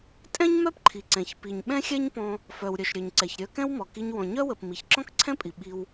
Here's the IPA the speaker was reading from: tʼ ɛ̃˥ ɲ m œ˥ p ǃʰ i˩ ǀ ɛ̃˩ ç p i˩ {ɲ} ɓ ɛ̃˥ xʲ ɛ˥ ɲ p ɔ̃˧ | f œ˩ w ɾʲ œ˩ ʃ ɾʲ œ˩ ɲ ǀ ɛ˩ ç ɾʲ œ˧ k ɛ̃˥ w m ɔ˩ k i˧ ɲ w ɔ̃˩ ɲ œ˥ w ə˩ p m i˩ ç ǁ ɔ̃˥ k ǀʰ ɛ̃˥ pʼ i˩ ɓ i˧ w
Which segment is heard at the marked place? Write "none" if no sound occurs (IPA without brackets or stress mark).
ɲ